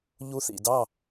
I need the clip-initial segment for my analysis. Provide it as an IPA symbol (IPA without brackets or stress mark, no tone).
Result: ʎ